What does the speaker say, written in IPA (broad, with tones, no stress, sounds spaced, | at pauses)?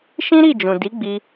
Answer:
ʃ ĩ˦ ɾ i˦˨ d͡ʒ ũ˨ d i˨˦ ɡ͡b i˧